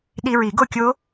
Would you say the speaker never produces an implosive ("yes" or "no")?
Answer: no